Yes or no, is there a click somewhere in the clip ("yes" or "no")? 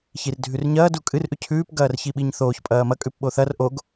no